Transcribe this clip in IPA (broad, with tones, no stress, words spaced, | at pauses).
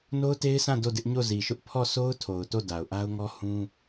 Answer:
no˦ʊ̯te˦ɪ̯sʰã˦˨ do˦˨dɪ˦ʔ ɲo˦˨zi˨ʃʊ˦ʔ pʰɔ˦˨so˦ʊ̯ tʰo˨ʊ̯to˦˨ da˨ʊ̯ʔa˦ʊ̯ŋɔ˦ hũ˦